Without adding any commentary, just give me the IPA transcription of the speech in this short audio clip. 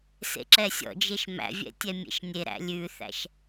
s ḛ ǁ ɛ sʲ ɔ̰ d͡ʒ e ʃ m æ̰ vʲ ɛ̰ tʲ ɛ mʲ ḛ ʃ nʲ e ɾ æ̰ lʲ ʉ θ æ̰ ʃ

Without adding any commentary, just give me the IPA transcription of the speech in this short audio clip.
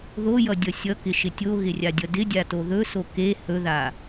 ð o j ʌ dʲ ʌ sʲ ʌ k ɪ ʃ ɪ tʲ o ɣ ɪ rʲ a dʲ ʌ d ɪ dʲ a t o ð ɵ s o k e h ɵ ð a

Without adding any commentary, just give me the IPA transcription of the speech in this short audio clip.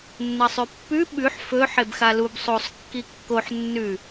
nː ɐ sˤ ʉ pː ʉ ɓ ʉ ħ f ɵ ħ e b x a l u b sˤ o sˤ kː i kː o ħ nː ʉ

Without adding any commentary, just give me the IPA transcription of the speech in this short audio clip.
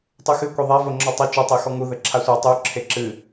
tˤ u x ɨ kʷ e ðˤ a v o ŋ͡ǁ ɔ tˤ ɘ t͡ʃ o tˤ e x ɔ ŋ u ð ɘ ǁʰ a sʷ a tˤ u ǁʰ e ǁ ɨ

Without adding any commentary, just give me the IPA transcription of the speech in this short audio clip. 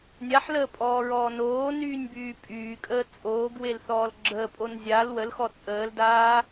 nʲ a ħ l əː pʼ ɔː ɹ ɔː n oː n yː nʲ b yː pʼ yː kʼ əː t͡sʼ oː ɡ w e l θ ɔː l ɡ͡ǁ əː pʼ o n zʲ a l w ə l x ɔ t͡sʼ əː l d aː

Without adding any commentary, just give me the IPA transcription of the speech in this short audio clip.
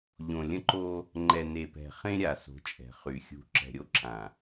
ʎ õ˨ lʲ ə̃˦ ǃ o˦ | ŋ͡ǃ ɛ˨ n e˨ p ɛ̤˨ χ ẽ˦ ɾʲ a˨ s o̤˨˦ t͡ʃʼ ɛ̤˨ χ y˨ xʲ ṳ˨˦ ǁ ɛ̤˨ ɾʲ o˦ ǁ ã˨

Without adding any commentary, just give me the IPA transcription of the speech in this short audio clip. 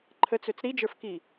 ǃʰ ə t͡s ø t͡s ɾ i d͡ʒ ə˞ f k i

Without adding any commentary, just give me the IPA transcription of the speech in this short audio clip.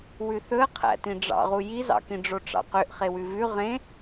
w ʉ θ ɵ ə̯ qʰ æ̰ t ĩ ɖ͡ʐ ɑ̰ ʁ u j i z ɑ̰ k ĩ ɖ͡ʐ o ʈ͡ʂ ɑ̰ q ø ʔ χ e w ʉ v ʉ ʁ ẽ

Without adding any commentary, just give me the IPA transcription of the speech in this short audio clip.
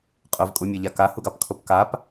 qʼ ʊ v kʼ u mʲ ɑ ʎ a k a h u ɡ ɑ p kʰ o p k a p

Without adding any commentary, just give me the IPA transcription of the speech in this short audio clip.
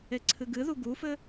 e ǀʰ ɨ ɡ ɨ ð u ɡ u f ɘ

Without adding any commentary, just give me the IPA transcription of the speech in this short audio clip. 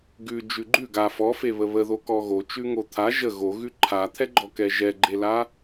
ɡ ʉ d͡ʒ ʉ ɡ͡ǃ ʉ ɡ a f ɔ f e β ə β ə ð o k ɔ ɣ o t͡ʃ ʉ ŋ o t̪ʰ a ʒ ə ɣ o ɣ ʉ ǃʰ a t̪ʰ ɛ ɡ͡ǃ ɔ k ɛ ʒ ɛ ɡ͡ǃ e l a

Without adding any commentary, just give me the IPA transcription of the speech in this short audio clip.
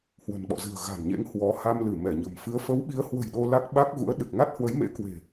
h w ə̤˨˩ n ɓ ɔ̰˧˨ z ɨ̤˨˩ ə̯ ɣ a̤˨˩ n ɲ ḛ˧˥ ŋ h w ɔ˨˦ h a˧ m l ɨ˧˩ m ɛ˧˩ ɲ ə̤˨˩ m f ɨ˨˦ ə̯ f ə˨˦ w ɓ i˨˦ ə̯ h w ə̤˨˩ j ɗ o˧ l a˦˥ k̚ ɓ a˦˥ k̚ ɣ ṵ˧˥ ə̯ ɗ ɨ˨˩ k̚ ŋ a˦˥ t̚ h w ə˨˦ j m ḛ˧˥ k w e̤˨˩

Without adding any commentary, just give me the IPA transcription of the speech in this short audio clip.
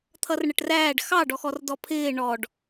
t̪ʰ ʌ r ɳ ə ʈ r æː ɖ x ɑ ɖ ɔ x ɔ r d ɔ pʰ ɪː ɳ ɔ ɖ

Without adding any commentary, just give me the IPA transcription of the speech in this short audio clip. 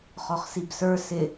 χ ɔ χ s i b s ə˞ s ɪ

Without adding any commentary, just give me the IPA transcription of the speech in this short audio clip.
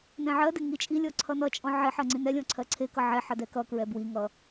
n ɛ̃ ʕ ɜ d ɪ ŋ i t͡ʃʼ i lʲ ɔ ǀʰ ʌ n ʌ t͡ʃʼ ɔ̃ ʕ ɪ ħ ɜ ŋ͡ǀ ĩ n ɛ lʲ ɔ̃ ǀʰ ɜ ǀʰ e k ʌ ʕ ɛ ħ ʌ d ɛ k ʌ k ɹ ɛ b w i ŋ ʌ

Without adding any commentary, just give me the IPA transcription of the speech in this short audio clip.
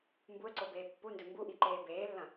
m b u ə̯ ǀ o b eː pː u n d ɵ m b u ʔ i ǃ eː b eː lː ɐ̃

